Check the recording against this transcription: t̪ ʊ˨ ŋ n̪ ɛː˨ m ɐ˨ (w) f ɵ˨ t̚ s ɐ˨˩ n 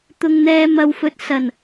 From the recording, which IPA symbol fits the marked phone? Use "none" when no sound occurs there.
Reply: w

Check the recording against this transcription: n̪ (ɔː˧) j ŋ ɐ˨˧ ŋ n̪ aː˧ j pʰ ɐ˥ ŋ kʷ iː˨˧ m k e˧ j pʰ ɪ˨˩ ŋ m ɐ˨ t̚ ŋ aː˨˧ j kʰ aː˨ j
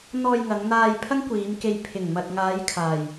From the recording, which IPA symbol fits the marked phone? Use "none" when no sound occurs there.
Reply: ɔː˧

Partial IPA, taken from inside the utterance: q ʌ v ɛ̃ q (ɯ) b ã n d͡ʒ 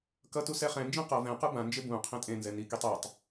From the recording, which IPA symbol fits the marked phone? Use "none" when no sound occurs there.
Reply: ɯ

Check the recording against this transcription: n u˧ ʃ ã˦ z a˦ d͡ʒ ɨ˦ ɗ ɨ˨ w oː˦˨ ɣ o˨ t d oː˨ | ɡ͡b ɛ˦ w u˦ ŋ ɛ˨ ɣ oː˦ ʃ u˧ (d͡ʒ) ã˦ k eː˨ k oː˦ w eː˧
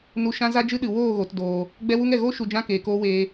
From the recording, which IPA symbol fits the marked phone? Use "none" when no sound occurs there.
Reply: d͡ʒ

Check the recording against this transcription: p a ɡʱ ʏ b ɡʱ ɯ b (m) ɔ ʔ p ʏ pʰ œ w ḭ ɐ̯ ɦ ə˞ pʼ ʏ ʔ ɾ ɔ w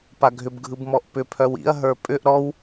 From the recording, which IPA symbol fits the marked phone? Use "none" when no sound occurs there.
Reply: m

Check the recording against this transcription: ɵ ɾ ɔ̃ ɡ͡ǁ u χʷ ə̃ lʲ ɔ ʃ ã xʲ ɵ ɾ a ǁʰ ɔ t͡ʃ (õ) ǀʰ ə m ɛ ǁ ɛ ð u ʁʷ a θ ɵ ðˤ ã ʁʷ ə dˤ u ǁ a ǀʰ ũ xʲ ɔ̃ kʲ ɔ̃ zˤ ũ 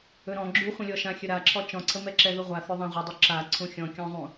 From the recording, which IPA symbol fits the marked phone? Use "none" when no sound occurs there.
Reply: ɔ̃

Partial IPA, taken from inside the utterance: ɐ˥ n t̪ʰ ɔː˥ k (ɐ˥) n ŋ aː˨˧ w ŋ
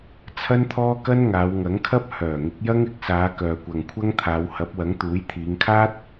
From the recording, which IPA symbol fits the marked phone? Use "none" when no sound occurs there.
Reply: ɐ˥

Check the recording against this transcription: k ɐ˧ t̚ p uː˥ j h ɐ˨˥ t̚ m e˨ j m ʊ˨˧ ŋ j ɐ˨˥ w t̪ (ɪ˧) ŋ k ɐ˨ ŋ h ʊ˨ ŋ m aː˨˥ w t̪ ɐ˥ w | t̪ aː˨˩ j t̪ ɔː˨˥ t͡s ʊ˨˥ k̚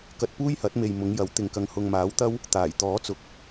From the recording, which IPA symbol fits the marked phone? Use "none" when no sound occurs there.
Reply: ɪ˨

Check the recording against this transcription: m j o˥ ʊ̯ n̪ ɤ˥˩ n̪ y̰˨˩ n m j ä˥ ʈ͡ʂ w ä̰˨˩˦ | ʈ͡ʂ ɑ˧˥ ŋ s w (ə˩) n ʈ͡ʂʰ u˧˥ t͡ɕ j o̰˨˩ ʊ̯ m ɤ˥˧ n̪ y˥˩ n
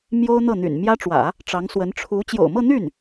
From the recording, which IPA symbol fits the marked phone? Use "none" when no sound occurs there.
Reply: ə˧˥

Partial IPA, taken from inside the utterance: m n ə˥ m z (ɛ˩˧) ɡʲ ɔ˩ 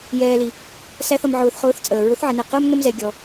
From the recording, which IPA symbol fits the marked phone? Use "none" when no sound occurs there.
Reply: ɛ˩˧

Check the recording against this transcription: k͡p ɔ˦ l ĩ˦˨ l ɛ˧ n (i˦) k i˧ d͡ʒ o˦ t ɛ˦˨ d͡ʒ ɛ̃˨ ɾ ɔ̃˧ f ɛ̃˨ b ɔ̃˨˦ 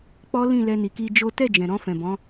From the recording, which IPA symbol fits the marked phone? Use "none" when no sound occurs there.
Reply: i˨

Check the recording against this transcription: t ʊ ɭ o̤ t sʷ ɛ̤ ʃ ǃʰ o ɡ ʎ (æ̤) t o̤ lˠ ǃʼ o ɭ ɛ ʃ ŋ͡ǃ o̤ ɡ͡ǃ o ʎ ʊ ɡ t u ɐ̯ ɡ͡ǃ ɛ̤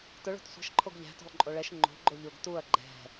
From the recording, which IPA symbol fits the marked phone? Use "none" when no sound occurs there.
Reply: æ̤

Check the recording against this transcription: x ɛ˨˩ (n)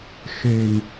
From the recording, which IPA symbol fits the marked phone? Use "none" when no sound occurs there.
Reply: n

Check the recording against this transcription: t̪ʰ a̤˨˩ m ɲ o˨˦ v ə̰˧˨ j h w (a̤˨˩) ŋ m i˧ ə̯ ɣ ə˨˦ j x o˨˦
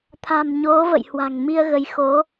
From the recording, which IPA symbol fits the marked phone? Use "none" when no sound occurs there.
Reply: a̤˨˩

